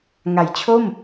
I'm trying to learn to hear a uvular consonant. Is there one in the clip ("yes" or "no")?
no